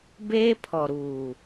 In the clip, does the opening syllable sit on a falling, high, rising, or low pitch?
high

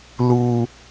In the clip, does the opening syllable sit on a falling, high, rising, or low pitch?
high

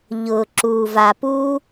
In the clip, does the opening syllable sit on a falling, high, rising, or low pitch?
low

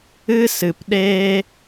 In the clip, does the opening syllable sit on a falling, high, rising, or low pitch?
high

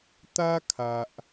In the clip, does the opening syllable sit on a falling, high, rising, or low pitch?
high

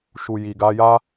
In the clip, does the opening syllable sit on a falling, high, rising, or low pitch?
low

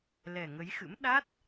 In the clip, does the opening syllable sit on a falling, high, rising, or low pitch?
low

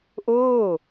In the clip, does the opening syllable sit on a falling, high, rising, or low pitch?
falling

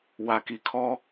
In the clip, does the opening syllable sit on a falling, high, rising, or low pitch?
low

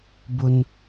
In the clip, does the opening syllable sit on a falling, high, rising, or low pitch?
high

